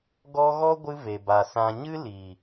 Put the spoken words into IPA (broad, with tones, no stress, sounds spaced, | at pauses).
ɡ ɔ˦ ɣ ɔ˦ ɡʷ ɨ˧ v e˨ b a˨ s ã˨ ɲ ɨ˦ l iː˨